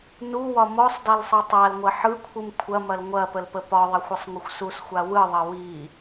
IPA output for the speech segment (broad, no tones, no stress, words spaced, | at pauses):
nuwɒ mɔsˤdalsˤɯ tˤalŋʷɐ ħɯkʷʰɯm kʷʰɐmɐl ŋʷɐpəlpə pɒðˤɐxʷɐsˤŋʷɐxʷ susxʷa wɯðˤɐ wi